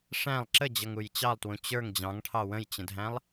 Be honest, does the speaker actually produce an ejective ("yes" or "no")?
no